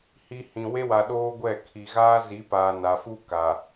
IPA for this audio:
h i˨ h ĩ˨ w e˦ w a˨ ɗ oː˦ ɡʷ ɛ˦˨ kʰ i˨ ɣ aː˦ z i˨˦ p aː˨ n a˨ f u˦ k a˨

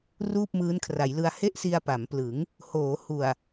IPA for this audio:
r uː˥˩ p̚ m ɯː˦˥ n kʰ r a˩˦ j l ɯ˧ a̯ h e˥˩ ʔ s i˧ a̯ p a˩˦ m p l ɯ˩˦ ŋ | h oː˩˦ h u˨˩ a̯

